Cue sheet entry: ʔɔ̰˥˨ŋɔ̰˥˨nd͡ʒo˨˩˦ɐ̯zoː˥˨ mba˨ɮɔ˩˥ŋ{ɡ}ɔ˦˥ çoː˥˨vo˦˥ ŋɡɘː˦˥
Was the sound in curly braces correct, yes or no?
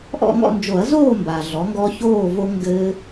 yes